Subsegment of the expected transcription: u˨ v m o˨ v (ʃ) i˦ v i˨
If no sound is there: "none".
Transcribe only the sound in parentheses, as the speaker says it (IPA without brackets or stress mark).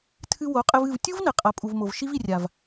ʃ